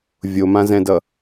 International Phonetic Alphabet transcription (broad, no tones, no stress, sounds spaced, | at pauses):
vʲ o m ã z ɛ̃ d ʌ